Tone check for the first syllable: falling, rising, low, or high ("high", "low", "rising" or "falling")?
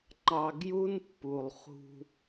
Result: low